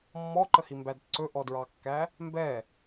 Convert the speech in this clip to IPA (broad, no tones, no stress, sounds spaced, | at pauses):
mː ɔ ǃ ə h i m b æ d ǀ ɵ ʔ ɔ d ɹ ɑ kː æ | m b ɛ